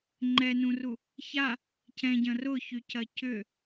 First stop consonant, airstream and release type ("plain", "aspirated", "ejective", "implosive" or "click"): click